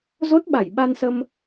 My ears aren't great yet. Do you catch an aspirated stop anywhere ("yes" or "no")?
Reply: no